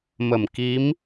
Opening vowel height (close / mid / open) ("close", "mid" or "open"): mid